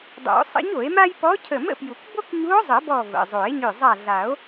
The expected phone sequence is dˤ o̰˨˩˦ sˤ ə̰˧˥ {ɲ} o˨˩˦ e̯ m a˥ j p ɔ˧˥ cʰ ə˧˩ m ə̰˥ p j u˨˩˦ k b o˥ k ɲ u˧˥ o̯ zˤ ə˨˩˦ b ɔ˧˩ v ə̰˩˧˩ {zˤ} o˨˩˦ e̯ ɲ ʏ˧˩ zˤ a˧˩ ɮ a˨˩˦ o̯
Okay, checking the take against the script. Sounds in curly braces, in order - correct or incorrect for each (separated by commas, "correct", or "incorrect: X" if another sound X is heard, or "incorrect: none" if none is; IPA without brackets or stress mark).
correct, correct